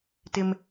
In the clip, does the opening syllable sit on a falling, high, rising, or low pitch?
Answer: low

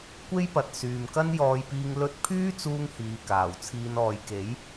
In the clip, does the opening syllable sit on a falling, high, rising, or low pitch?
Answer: high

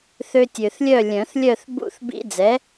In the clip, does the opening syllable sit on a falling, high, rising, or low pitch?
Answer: high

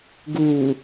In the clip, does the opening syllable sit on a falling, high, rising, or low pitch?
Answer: low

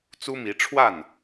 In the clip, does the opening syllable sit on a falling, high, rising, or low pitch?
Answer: high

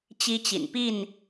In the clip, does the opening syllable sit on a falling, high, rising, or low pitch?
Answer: high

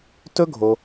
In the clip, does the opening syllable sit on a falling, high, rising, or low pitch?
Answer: high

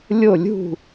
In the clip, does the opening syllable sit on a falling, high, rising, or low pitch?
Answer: falling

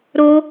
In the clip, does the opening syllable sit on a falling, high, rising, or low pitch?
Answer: high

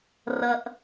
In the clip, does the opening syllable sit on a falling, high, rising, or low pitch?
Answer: low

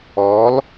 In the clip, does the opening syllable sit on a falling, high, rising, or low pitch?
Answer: rising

